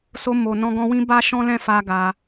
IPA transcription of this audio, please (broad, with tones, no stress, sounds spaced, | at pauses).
s o˧ m o˨ n ɔ̃˧ ɡ ɔ̃˧ w ĩ˦ b a˦ ʃ ɔ̃˦ l ɛ̃˦˨ f a˧ ɡ a˧